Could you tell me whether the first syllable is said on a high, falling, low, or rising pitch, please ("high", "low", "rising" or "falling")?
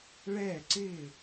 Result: falling